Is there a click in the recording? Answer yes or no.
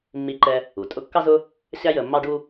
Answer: yes